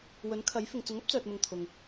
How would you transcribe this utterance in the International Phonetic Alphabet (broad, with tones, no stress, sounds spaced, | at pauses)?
w ɵ˨˥ n kʰ ɐ˨˥ j f ɪ˨ ŋ t͡s ʊ˨˥ ŋ ɐ˥ p̚ t͡s œː˨ t̚ m ʊ˨ ŋ t̪ʰ ʊ˨ ŋ